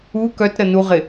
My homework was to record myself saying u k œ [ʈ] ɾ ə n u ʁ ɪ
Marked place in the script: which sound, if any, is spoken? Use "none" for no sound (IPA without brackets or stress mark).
t